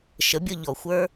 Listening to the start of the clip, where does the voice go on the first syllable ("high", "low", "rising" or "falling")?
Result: rising